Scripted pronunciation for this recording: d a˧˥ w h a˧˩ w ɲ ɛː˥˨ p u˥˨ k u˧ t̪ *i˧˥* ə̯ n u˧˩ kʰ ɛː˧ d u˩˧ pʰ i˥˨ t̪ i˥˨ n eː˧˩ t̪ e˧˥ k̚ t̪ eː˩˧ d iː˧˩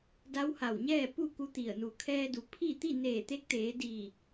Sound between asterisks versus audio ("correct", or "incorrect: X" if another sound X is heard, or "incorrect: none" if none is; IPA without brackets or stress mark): incorrect: i˧˩